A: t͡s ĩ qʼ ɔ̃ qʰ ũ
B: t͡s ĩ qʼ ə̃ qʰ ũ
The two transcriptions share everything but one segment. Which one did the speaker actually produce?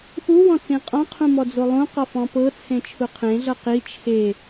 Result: A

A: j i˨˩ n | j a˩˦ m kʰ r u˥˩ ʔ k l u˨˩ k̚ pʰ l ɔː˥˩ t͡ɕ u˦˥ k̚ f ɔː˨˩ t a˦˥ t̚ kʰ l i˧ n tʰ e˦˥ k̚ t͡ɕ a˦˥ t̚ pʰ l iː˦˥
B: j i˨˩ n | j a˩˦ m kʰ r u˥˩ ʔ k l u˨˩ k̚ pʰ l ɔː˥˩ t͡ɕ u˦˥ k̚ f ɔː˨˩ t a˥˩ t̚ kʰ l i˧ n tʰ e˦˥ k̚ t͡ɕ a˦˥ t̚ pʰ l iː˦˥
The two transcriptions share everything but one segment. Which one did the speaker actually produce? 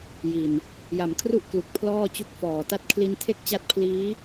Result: B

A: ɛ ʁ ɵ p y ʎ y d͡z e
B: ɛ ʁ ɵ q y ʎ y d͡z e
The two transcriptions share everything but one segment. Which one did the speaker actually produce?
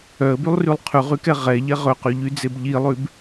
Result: B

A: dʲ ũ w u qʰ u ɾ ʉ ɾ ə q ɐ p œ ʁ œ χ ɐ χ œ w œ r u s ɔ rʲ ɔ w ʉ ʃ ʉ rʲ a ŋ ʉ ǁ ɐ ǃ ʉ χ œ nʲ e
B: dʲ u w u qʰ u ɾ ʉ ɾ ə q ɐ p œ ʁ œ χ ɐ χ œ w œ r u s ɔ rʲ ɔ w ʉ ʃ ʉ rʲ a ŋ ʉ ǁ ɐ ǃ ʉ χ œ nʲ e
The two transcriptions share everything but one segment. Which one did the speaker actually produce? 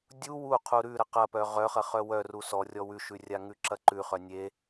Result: B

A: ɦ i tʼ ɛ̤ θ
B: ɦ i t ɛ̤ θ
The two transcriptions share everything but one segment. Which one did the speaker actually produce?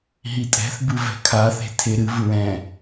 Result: A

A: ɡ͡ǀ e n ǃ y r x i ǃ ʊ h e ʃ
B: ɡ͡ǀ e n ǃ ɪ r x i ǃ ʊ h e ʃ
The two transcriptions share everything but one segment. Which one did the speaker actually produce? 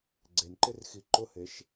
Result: B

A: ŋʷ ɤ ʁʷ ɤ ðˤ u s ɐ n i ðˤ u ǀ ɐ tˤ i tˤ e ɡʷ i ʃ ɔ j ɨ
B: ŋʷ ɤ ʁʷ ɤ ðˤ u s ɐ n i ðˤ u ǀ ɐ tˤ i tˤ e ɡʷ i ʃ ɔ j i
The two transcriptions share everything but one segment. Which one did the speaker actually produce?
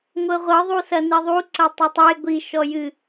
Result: A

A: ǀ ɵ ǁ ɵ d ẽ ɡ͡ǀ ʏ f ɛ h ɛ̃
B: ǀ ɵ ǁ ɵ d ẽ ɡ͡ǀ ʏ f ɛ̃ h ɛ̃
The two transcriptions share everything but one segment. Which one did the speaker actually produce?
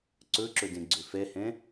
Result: A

